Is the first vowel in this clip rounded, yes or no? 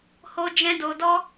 yes